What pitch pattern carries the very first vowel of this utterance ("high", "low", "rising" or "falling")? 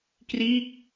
falling